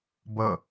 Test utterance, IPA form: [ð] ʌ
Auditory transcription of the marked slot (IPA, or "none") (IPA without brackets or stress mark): b